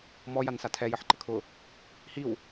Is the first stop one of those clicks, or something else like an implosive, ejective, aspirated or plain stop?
aspirated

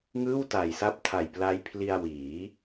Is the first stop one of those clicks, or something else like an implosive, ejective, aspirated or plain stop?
plain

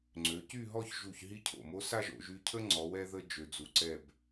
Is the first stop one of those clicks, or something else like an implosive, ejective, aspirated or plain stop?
click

